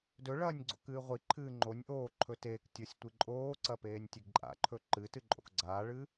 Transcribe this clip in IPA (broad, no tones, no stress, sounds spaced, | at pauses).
d ɵ ɭ ɐː nʲ ɡ͡ǀ o̰ k ɨː ʁʷ i ǃʰ ɨː ŋ͡ǃ o nʲ ʔ oː ǃʰ ɵ t eː k tʲ o sʲ tʷ i ǃʼ oː ǀ ɐ p eː nʲ tʲ e ɡ ǃʼ a̰ ǃʰ ɵ ǃ ɨ t ɨ ǃʼ o̰ k ɡ͡ǀ aː ɭ ɨ